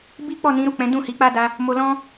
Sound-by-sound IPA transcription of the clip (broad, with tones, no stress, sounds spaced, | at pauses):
b i˦ k͡p ɔ˦˨ n ĩ˨˦ ɾ u˦˨ k͡p ɛ̃˨˦ d ũ˦˨ h i˨˦ k͡p a˦ d a˦ | m o˧ l ɔ̃˦